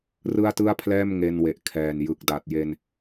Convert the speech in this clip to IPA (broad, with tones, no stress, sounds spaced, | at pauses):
r ɯ˥˩ a̯ t ɯ˥˩ a̯ pʰ l ɛː˥˩ m ŋ e˧ n w e˨˩ ʔ kʰ ɛː˨˩ n j ɯ˨˩ k̚ d a˨˩ t̚ j e˧ n